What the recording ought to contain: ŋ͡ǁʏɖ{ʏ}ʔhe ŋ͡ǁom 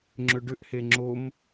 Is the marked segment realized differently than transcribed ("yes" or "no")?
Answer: no